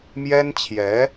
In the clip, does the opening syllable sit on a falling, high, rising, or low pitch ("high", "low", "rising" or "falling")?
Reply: high